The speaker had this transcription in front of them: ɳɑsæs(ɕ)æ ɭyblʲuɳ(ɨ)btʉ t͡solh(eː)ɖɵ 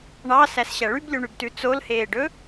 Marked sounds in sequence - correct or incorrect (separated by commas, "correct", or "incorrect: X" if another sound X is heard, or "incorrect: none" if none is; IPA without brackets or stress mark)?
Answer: correct, incorrect: y, correct